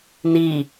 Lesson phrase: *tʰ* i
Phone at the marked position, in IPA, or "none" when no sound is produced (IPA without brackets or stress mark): n